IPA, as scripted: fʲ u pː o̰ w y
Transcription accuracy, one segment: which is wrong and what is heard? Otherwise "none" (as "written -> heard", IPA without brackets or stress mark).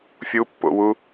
y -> u